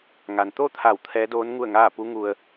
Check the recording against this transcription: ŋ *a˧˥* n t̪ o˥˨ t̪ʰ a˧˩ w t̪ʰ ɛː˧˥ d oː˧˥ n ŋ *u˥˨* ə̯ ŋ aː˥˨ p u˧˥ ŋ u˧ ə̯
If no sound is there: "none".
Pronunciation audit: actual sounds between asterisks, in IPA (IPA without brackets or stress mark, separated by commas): a˩, u˥˨